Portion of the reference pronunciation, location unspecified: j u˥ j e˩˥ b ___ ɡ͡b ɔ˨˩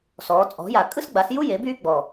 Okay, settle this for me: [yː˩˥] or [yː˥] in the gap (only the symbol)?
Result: yː˥